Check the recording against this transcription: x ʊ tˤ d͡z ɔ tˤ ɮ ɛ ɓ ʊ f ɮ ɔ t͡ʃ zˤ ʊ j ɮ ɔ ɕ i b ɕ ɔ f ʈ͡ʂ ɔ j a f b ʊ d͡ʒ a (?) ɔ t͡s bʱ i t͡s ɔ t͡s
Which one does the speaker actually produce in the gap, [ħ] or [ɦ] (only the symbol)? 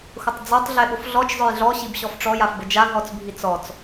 ɦ